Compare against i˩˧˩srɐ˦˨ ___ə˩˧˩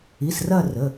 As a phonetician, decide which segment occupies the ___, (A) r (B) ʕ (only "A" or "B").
A